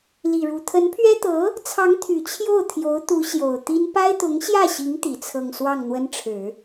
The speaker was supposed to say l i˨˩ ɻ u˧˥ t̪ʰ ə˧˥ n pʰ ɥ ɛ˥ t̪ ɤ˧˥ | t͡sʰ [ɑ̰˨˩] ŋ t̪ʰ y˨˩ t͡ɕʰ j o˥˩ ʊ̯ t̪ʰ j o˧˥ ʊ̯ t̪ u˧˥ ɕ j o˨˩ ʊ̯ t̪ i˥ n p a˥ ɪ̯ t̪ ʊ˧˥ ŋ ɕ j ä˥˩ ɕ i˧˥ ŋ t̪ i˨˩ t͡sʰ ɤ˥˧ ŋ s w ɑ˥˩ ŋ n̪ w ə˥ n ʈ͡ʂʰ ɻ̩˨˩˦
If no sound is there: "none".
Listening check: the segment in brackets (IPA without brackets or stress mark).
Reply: ɑ˧˥